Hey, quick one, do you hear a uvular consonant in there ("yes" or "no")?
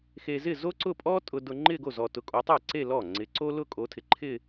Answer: no